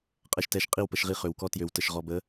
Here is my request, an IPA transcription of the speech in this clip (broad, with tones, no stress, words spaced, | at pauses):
qʼɛ˧ʃtɛ˧ʃqʼi˦˨w pə˧ʃʁi˦ χø˨wkɔ˦ tjø˨wtə˨ʃʁɔ˨bə˨˦